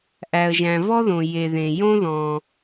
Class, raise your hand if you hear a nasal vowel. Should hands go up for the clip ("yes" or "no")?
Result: yes